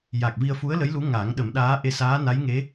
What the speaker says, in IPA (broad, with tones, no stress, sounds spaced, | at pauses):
j a˨˩ k̚ v i˧ ə̯ f u˧˥ ə̯ l ə˧˥ j l u˧˥ ŋ a˨˩˦ ŋ ɗ ə˨˩˦ m ɗ aː˧˥ ʔ e˧ s aː˧˥ n a˧˥ j ŋ e˧˥